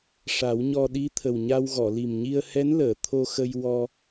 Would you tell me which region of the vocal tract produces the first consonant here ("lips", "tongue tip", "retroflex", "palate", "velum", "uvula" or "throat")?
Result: retroflex